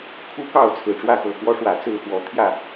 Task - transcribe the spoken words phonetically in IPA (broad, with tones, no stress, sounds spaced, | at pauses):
kʰ u˦ k ɑ˥˨ ʊ̯ t͡sʰ ɹ̩˨˩ ʈ͡ʂ w ä˥˨ x ɤ˨˩ k w ɔ˦ ʂ w ä˨˩ t͡s ɹ̩˥˨ x w ɔ˨˦ t̪ʰ j ä˥˨